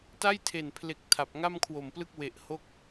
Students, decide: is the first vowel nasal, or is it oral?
oral